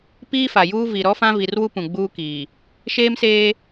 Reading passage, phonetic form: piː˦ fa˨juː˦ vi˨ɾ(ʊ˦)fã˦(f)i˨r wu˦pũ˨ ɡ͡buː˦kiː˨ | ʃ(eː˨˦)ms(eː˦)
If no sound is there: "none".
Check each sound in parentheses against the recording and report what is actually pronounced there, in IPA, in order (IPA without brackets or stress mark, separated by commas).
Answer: ɔ˦, v, eː˦, eː˦